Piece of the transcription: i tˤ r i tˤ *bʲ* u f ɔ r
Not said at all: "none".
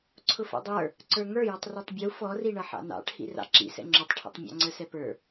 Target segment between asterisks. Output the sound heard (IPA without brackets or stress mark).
bʲ